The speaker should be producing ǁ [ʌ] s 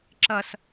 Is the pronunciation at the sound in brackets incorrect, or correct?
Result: correct